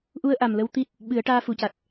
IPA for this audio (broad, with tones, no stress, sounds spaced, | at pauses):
ʔ u˧ ə̯ ʔ a˨˩ m l ə˧ w t̪ i˦˥ t̚ | ɓ ɨ˨˩˦ ə̯ ʈ aː˧ f u˨˩˨ c a˨˩ t̚